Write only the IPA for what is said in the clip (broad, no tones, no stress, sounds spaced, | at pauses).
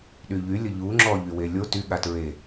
ɗ y ʎ y lʲ ə ʎ u ŋ͡ǁ ɔ ʎ y w e lʲ o t y ɠ a t ɹ e